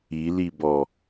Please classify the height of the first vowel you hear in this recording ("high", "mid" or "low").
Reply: high